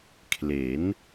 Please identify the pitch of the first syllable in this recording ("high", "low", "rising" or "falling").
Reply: rising